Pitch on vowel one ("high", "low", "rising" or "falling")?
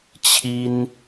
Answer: high